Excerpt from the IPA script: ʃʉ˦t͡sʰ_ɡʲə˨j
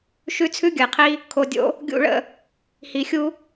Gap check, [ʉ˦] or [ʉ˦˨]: ʉ˦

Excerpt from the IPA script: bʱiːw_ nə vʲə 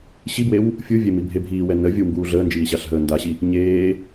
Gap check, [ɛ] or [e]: ɛ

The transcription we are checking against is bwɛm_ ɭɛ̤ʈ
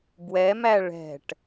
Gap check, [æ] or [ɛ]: æ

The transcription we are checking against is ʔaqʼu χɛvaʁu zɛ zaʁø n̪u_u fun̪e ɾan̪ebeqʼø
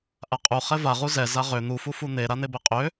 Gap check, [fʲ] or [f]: f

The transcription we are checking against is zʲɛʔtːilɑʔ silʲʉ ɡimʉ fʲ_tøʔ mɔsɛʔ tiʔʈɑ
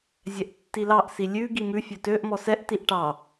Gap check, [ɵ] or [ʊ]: ɵ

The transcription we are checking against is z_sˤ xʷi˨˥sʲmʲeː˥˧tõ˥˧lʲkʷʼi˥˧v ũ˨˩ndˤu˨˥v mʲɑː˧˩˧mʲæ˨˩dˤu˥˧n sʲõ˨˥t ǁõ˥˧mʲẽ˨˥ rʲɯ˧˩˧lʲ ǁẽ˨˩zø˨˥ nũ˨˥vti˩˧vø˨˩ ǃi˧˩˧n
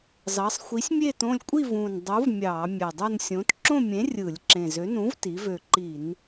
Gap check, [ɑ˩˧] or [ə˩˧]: ɑ˩˧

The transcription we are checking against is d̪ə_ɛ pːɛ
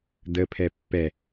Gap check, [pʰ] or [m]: pʰ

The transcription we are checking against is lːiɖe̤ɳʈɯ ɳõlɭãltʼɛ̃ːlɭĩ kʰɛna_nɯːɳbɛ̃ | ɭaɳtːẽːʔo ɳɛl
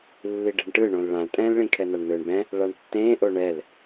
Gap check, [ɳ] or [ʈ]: ɳ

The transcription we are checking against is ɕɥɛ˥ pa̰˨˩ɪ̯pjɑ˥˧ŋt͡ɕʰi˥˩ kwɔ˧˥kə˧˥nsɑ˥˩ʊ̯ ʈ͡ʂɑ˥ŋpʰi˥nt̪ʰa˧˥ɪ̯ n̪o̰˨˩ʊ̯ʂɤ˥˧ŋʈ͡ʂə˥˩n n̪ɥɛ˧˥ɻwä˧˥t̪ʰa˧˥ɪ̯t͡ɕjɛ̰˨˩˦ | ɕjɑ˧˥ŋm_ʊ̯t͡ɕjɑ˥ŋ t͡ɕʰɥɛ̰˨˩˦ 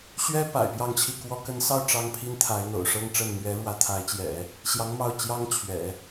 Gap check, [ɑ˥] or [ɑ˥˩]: ɑ˥˩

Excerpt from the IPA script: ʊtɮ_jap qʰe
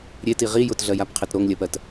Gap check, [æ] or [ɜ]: ɜ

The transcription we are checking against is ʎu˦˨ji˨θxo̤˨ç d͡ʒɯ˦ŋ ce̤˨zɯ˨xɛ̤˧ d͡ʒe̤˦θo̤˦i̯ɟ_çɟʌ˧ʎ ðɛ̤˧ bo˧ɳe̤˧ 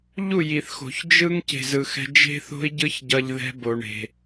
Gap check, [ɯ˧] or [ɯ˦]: ɯ˦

